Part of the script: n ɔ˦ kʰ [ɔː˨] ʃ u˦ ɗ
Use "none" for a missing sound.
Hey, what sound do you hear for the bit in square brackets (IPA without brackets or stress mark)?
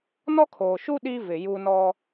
oː˨